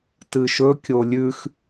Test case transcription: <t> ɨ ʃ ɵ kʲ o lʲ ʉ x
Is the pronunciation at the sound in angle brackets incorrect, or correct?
correct